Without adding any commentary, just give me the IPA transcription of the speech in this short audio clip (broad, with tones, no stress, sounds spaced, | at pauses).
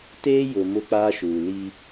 t eː˦ j ʊ˨ m ʊ˦ k͡p aː˦ ʃ uː˨ l i˦